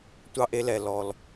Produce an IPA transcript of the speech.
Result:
tʷ ɑ˧ ʔ e˧ l ɛ˩ l ɔ˩ l

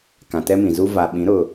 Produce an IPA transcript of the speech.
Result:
k ã˨ t ɛ˦ m ĩ˨ z u˦ v a˨ ɓ ĩ˨˦ ɾ ʊ˨

